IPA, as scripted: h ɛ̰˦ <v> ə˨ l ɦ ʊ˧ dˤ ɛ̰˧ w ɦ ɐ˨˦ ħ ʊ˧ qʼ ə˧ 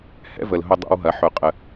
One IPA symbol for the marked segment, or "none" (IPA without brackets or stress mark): v